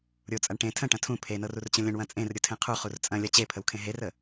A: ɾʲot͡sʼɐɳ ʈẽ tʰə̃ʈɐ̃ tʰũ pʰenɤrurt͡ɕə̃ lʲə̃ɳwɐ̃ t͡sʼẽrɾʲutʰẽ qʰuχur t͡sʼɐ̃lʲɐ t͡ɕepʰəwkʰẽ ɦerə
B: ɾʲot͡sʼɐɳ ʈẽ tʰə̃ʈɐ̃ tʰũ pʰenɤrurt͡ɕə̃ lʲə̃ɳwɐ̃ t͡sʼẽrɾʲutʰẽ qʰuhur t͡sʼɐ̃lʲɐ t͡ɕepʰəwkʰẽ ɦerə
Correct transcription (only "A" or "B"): A